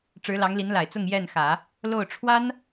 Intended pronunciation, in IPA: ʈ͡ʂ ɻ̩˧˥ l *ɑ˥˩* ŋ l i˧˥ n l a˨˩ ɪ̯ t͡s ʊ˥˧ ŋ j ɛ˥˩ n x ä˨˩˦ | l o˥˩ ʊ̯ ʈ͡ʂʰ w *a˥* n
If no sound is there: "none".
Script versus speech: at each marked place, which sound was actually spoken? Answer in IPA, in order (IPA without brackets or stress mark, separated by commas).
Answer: ɑ˧˥, a˥